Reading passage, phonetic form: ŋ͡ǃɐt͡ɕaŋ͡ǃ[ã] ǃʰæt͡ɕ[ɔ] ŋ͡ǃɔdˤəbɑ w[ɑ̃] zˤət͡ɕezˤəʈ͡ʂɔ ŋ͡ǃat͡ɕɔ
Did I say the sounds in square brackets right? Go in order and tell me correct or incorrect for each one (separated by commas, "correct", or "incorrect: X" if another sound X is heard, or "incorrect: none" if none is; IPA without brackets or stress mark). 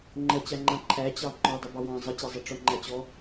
correct, incorrect: ɑ, correct